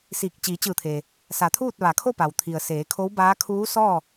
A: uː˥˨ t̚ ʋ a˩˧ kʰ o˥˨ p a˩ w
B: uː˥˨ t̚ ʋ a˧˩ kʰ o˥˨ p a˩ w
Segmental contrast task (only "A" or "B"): A